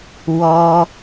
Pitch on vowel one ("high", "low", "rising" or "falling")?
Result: high